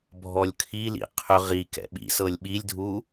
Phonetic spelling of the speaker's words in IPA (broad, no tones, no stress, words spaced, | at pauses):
bʱɔlʲkʰilḭ qʰʏ ʁi kɛ̰ɓḭsɤlʲ ɓilʲdʱu